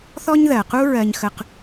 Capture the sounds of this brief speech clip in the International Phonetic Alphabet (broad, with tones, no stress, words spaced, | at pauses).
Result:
θɔ˥ɲðɜ˩qu˥ ɹɜ˧ɲxə˧q